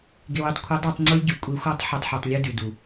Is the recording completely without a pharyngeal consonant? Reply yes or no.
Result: no